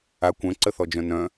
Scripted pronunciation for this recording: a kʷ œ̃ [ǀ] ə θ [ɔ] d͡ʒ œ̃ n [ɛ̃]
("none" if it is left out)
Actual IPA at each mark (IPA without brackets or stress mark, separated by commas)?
ǀ, ɔ, œ̃